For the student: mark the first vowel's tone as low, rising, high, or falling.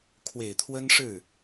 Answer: low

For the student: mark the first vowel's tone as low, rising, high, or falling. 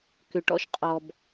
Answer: low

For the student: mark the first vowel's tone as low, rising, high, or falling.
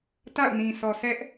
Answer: falling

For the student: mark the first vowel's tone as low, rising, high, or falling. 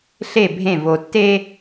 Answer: falling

